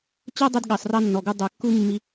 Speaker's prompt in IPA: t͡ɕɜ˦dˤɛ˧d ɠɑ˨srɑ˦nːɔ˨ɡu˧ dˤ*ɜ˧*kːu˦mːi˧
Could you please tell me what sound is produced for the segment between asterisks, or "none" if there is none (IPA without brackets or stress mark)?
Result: ɜ˨